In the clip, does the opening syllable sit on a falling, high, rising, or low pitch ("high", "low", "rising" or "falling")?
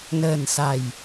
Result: low